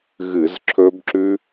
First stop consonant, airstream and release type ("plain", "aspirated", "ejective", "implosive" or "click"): click